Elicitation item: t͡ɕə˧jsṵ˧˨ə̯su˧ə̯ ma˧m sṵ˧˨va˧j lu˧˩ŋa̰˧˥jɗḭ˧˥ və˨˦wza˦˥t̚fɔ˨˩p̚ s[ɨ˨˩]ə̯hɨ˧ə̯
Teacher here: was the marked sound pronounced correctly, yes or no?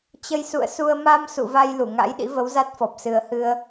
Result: yes